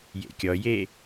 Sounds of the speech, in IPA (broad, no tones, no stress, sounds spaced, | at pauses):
j ḛ kʲ ɔ j e